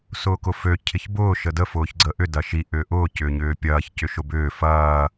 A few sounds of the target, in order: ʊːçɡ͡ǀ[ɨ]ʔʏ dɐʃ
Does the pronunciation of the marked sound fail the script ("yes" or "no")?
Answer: yes